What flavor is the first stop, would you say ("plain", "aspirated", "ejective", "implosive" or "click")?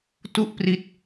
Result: plain